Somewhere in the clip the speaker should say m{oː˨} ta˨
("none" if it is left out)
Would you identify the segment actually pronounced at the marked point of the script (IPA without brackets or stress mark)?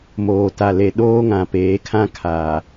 oː˨